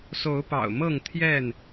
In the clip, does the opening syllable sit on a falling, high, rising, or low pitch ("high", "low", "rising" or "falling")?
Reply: rising